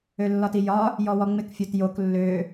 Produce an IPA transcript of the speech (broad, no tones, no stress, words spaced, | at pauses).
ølːɒtijɒ | jɔwɔŋ͡mɪk fʲotjok lːø